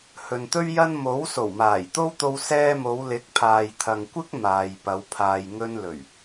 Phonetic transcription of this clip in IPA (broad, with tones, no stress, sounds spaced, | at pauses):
h ɵ˨ n t̪ ɵ˥ ɥ j ɐ˥ n m o˨˥ w s o˨˩ w m aː˨˩ j t̪ o˥ w t̪ o˧ w s ɛː˧ m o˨˧ w l ɪ˨˥ k̚ pʰ aː˨ j t̪ʰ ɐ˨ ŋ kʷ ɪ˥ k̚ m aː˨ j p ɐ˨˧ w pʰ aː˨ j ŋ ɵ˧ n l ɵ˨˩ ɥ